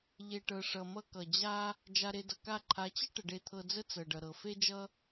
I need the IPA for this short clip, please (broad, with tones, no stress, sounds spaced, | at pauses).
ʎ e˨ ʈ ɤ˨ ʂ ʌ˨ m ʌ˧ k ʌ˨ d͡ʑ a˦ | d͡ʒ a˧ ɾ e˧ d ʌ˨ k a˦˨ ǃʰ a˨˦ t͡ɕ ʌ˦ ʈ ə˨ ɖ e˧ t̪ʰ ɤ˧ d͡z ə˦ t͡s ɤ˨ ɖ ʌ˨ ɾ ɤ˨ f e˦ d͡ʒ ʌ˦